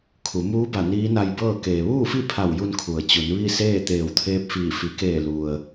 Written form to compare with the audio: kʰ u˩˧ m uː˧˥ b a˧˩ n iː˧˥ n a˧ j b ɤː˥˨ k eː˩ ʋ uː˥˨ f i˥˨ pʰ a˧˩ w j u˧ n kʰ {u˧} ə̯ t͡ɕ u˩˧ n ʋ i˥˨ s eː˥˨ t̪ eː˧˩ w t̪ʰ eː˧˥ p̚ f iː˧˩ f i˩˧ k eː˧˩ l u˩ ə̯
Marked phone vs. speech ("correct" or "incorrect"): incorrect